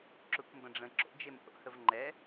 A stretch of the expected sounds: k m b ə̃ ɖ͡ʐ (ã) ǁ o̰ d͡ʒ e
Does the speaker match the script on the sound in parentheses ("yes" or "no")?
no